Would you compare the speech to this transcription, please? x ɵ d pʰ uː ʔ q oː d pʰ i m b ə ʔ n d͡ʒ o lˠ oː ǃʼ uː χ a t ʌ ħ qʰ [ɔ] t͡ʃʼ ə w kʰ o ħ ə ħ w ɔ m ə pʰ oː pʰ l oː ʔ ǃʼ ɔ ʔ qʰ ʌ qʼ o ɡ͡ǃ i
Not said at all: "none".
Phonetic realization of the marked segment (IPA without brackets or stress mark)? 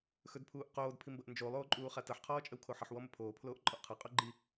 ɔː